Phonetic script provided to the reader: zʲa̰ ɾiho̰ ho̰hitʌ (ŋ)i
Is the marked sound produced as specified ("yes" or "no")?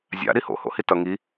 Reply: yes